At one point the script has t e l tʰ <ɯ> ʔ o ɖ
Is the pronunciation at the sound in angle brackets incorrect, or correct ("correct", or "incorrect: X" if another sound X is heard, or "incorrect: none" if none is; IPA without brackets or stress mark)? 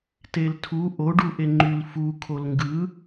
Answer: incorrect: u